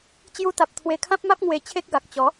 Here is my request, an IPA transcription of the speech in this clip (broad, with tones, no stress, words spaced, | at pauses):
t͡ɕju˧t̪a˨p̚ t̪ʰwe˧kʰã˦p̚ma˦p̚ ŋwe˧t͡ɕʰe˦k̚ɡa˨k̚ t͡ɕɔ˨˦